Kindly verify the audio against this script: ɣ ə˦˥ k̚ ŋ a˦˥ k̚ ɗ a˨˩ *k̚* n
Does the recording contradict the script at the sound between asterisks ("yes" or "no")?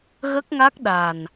yes